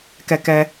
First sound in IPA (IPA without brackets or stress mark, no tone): k